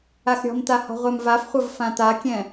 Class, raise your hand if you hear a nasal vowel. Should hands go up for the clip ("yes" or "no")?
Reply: yes